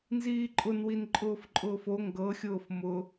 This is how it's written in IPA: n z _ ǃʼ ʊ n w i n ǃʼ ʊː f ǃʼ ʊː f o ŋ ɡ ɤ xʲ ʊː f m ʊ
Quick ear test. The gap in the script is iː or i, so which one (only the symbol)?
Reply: iː